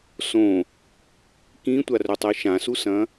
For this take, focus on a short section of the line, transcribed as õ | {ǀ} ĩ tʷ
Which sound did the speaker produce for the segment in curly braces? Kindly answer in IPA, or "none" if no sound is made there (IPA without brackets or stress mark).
k